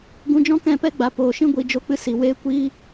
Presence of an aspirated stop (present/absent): absent